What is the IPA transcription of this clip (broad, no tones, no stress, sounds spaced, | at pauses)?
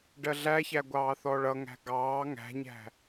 ɖ ɜ ɮ æ ç æ ɡʷ ɑː θ ɔ ɭ ʌ ŋ æ̤ ɡ ɑː ŋ æ̤ ɲ æ̤